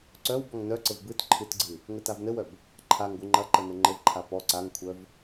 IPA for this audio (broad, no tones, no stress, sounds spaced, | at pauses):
ǀ œ w b ɔ ŋ n œ ǀ ɘ v b ɨ t ǃʰ ɨ t ɡ͡ǀ ɨ | ŋ ɘ t a v n ɘ w œ b | ǃʰ a ŋ ɡʷ ɨ ŋ͡ǃ ɐ ǃ ə n ɘ ŋ͡ǃ ɘ v ǃʰ a p ɔ ǀ a ŋ kʷʰ œ v